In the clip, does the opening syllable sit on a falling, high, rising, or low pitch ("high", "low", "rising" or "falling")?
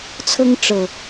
high